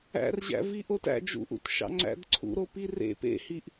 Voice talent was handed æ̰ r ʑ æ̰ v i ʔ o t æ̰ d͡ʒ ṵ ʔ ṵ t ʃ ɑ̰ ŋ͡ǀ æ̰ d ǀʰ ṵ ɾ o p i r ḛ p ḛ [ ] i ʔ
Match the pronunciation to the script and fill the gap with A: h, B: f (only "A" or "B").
A